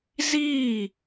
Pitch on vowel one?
falling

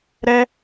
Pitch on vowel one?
high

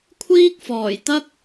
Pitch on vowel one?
high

